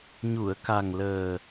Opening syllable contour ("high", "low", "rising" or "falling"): low